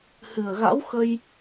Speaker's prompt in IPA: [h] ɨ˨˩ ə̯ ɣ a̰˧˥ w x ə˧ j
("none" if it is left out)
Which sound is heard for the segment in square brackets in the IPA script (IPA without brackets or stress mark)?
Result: h